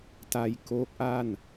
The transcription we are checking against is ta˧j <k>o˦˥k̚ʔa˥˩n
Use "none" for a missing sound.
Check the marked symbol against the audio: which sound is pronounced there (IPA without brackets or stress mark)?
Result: k